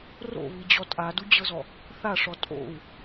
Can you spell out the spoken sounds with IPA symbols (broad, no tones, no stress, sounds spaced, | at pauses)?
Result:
r o̰ β i d͡ʑ ɔ tʼ a d u d͡ʑ ɤ z ɔ | θ a ʂ ɔ tʼ o̰ u̯